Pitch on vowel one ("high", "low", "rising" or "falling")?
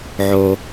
high